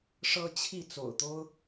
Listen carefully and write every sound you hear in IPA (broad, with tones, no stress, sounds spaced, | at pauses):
ʂ ɤ˦ t͡ɕʰ i˥˨ t͡s o̰˨˩ ʊ̯ t̪ o˦ ʊ̯